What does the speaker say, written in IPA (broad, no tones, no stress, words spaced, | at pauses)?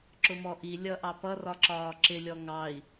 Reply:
ǁʊmɔʔi lʲʌʔɑpʌrɒ ǁɒːǁɪlʲɔ ŋɑi̯